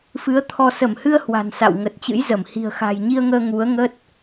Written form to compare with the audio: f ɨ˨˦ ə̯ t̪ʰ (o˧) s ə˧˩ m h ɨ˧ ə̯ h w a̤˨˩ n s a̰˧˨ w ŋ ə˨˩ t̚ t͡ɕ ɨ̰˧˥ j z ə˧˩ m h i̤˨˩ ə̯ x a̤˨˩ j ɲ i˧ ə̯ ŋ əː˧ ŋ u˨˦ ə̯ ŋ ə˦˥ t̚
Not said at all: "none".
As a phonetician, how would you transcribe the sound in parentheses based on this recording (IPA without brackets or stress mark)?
ɔ˧